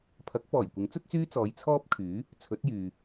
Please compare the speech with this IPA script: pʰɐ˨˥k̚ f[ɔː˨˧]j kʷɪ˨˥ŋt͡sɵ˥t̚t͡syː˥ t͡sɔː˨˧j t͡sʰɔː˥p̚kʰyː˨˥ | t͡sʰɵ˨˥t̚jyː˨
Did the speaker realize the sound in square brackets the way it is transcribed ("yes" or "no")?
no